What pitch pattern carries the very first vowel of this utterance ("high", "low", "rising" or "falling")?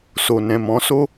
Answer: low